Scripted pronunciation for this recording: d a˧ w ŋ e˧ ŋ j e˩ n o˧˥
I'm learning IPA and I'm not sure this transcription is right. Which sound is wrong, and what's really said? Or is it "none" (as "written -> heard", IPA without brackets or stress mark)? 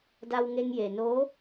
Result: none